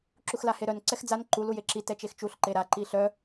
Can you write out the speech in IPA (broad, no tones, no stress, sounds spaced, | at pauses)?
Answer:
ǁ u x l a h e ɾ œ n ǀ ɛ x d͡z a n ǃ u l u j e ǁ i t ɛ t͡ʃ e x t͡ʃ u ɬ ǃ e ɾ a ǃ i ɬ œ